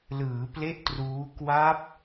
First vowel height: high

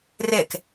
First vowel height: mid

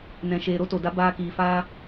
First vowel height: mid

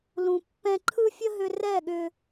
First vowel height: high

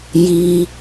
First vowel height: high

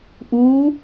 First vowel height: high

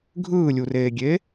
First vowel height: high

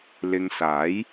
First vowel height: high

